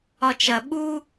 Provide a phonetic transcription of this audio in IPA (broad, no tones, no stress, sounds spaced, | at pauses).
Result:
ɒ t͡ʃ ɐ ɓ u